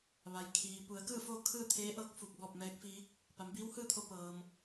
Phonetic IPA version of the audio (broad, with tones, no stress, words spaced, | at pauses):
ʋa˩jkʰiː˩ pu˩˧ə̯kɯː˥˨foː˥˨ kʰɯː˥˨t̪ʰeː˧˥ʔɤː˧˥k̚ fu˧˩k̚bɔː˥˨p̚ mɛː˧˥k̚fiː˧˥k̚ | pa˩˧mbiː˧˥whɯː˥˨t̪ʰo˧ pɤː˩m